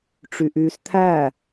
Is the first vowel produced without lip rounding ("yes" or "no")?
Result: no